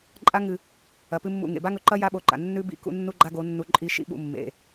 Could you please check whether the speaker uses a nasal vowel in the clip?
no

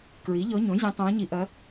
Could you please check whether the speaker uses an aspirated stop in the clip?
no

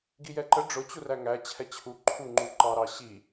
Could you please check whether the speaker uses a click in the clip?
yes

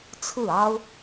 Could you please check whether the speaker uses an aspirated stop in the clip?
yes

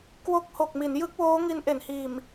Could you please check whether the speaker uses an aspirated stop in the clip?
no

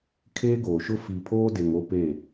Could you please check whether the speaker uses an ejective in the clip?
no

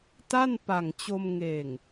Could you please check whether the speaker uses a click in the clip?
no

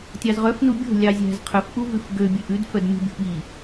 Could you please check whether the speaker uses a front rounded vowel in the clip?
yes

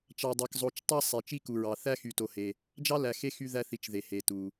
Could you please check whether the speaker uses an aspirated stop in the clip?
no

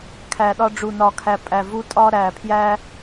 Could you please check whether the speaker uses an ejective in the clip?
yes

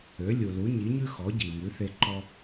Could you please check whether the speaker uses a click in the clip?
yes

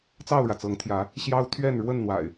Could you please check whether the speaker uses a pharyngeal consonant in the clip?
no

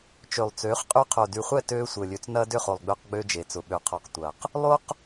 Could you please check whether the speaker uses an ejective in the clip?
yes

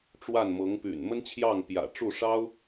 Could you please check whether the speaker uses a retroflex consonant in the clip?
yes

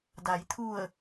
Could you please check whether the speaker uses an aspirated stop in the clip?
yes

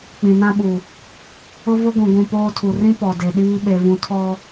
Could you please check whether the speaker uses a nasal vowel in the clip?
yes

